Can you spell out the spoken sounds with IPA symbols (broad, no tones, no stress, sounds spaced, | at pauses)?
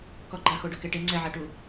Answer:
k ɔ ɡ͡ǃ a x o ɖ ʊ k e ʈ e ŋ͡ǀ ɛ ʕ a ʈ u